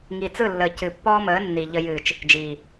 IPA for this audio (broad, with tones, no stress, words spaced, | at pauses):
ŋi˨t͡sɯ˦˨lːəː˨ cɨ˨pːɔː˦məː˨˦ nːi˨ʎə˧ jɨː˨t͡ʃ | d͡ʒiː˨